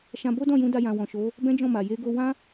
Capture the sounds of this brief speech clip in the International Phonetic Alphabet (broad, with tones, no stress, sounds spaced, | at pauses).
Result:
ʃ ã˧ b o˦ d ɔ̃˦˨ j ũ˨˦ d a˧ j ã˨ w ɔ̃˨ ʃ o˨˦ | b ɛ̃˦ d͡ʒ ɔ̃˦˨ m a˨ j e˨˦ ɡ o˧ w ã˦